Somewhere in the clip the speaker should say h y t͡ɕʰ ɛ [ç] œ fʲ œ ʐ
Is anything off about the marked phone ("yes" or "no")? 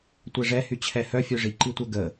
yes